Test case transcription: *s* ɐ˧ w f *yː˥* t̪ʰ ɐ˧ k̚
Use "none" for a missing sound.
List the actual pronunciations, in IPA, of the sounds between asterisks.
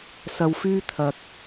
s, yː˥

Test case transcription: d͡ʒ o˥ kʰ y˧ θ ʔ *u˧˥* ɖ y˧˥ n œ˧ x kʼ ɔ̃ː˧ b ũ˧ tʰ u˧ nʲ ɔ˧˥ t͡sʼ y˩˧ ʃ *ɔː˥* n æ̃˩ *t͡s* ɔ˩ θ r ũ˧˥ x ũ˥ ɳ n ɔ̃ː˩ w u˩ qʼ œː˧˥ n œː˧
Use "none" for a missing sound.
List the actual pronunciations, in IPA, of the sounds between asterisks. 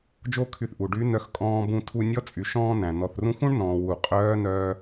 u˩, ɔ̃ː˥, n

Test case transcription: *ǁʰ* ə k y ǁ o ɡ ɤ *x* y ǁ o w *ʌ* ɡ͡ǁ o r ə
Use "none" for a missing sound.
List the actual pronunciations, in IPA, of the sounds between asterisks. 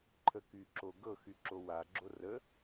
ǃʰ, x, a

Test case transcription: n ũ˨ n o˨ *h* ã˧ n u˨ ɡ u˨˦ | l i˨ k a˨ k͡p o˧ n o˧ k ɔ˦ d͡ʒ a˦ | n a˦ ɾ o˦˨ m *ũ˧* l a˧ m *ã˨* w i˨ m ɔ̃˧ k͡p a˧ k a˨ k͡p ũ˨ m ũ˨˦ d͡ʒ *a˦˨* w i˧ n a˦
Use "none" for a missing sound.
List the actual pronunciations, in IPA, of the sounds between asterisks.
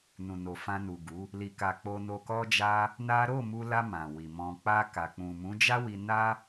f, u˧, ã˨, a˦

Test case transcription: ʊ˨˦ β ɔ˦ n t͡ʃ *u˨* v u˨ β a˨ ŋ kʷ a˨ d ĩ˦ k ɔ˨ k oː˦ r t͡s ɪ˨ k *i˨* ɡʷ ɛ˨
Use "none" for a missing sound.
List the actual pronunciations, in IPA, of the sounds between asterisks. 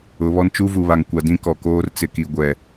u˦, i˨

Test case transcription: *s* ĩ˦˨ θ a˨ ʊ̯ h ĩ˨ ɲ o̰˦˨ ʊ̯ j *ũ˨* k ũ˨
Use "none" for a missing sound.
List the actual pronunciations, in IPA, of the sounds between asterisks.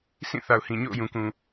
s, ũ˨

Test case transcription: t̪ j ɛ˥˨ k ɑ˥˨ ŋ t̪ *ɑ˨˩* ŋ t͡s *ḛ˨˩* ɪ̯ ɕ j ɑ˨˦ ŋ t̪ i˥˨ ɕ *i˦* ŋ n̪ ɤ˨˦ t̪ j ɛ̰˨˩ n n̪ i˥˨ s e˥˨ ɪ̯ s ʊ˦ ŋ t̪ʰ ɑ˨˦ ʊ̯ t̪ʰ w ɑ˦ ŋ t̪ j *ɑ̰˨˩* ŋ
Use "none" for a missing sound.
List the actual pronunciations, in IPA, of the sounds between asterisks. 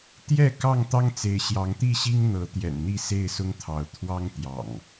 ɑ˦, e˨˦, i˦, ɑ̰˨˩

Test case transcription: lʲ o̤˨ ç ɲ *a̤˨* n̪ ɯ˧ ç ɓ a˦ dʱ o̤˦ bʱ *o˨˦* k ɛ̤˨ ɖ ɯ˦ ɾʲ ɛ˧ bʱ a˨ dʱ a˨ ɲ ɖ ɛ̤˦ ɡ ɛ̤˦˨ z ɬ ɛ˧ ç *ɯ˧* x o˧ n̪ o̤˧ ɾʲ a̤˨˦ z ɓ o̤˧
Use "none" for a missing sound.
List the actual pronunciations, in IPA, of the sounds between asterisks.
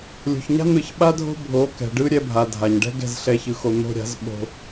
a̤˦, o˨˦, ɯ˧

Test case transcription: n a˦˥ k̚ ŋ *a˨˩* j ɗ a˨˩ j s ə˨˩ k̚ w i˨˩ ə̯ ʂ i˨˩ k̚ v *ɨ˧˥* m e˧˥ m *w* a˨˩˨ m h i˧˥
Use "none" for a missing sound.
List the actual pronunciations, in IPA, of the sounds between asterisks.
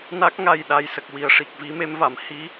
a˨˩, i˧˥, v

